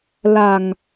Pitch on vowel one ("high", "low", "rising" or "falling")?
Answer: low